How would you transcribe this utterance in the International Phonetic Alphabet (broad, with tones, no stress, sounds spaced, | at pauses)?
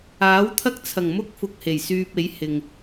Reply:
aː˨˥ w t̪ʰ ɐ˥ k̚ t͡sʰ ɐ˨˩ ŋ m ʊ˥ k̚ f ʊ˧ k̚ h e˨˩ j s yː˧ p̚ e˨˥ j h ɪ˨ ŋ